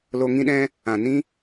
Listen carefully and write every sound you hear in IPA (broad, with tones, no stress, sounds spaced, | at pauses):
l o˧ ŋ ĩ˦ ɗ ɛ̃˦ | ã˨ n ĩ˦